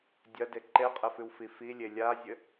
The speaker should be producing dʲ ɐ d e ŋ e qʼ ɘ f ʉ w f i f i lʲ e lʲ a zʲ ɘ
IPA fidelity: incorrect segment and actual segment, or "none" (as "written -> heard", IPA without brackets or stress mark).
ŋ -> ǃ